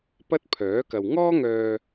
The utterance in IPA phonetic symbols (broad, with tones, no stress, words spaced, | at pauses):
pɐ˥t̚pʰœː˨˥kɐ˨w ŋɔː˥ŋœː˧